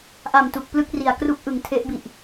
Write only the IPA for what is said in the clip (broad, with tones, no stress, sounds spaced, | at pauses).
ʔ a˨˩ m t u˨˩ k̚ p l ɯ˥˩ k̚ r i˨˩ a̯ k r u˦˥ k̚ ʔ ɯ˩˦ ŋ tʰ e˦˥ ʔ b i˨˩ ʔ